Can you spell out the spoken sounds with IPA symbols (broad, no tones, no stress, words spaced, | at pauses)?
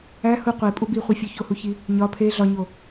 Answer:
æ hu qʷepʼu biχʷefʲo çohuçi | ɲɒ pʰe ɮɒɲo